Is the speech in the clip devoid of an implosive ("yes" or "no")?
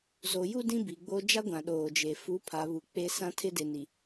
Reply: no